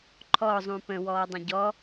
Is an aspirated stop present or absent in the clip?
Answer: present